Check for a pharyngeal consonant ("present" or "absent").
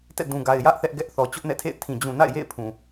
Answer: absent